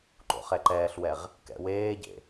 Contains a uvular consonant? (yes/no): yes